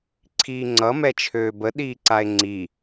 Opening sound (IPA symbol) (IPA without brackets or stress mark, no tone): ǀʰ